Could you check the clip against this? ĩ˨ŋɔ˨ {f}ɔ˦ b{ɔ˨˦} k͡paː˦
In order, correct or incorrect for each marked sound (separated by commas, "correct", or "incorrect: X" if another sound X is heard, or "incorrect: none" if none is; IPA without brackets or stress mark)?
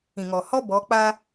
incorrect: h, correct